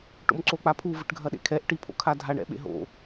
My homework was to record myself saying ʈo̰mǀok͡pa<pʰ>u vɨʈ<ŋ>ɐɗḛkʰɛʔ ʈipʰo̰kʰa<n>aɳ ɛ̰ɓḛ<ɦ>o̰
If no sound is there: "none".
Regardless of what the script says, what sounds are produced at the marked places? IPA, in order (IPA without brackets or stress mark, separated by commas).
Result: pʰ, ɡʱ, dʱ, ɦ